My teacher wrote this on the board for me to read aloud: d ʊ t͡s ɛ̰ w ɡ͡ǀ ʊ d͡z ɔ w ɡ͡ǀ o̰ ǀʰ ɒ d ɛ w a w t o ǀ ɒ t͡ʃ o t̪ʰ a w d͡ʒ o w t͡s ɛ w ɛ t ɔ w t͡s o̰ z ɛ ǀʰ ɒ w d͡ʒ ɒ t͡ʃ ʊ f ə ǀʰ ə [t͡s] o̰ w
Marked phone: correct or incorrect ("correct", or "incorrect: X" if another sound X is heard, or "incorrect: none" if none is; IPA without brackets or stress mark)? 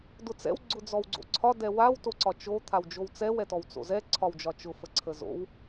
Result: incorrect: z